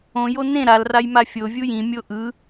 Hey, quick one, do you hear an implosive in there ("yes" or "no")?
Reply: no